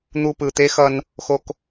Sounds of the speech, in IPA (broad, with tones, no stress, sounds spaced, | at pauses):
n̪ u˧ p ɯ˨˩ t̪ e˧˥ x ʌ˧ n | x o˧ k